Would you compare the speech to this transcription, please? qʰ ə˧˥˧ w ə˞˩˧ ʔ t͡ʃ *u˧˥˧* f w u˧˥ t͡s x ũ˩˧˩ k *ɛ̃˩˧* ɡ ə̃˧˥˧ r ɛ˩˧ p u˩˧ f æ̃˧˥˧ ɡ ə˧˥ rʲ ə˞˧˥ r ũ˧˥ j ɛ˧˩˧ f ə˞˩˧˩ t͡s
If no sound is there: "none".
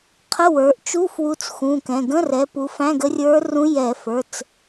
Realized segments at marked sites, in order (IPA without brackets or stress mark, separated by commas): u˧˥˧, ɛ̃˩˧˩